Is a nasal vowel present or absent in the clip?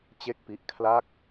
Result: absent